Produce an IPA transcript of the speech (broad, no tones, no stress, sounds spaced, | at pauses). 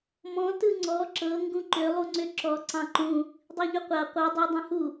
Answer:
m ɔ̃ t ɯ ŋ͡ǀ ɔ ǁ ɤ ŋ ɡ ũ ǃ ʏ lˠ u ŋ͡ǀ ʏ ǁ ɔ ǀ ɑ̃ ǃ ũ | dˤ i ʎ ʏ qʷ a qʷ ɤ dˤ u dˤ ĩ h u